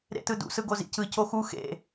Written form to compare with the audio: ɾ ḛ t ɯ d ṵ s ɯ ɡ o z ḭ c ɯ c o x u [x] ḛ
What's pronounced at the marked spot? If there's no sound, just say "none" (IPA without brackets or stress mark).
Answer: x